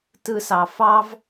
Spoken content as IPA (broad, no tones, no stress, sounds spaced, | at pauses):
t ɯ s ɑ f ɑ v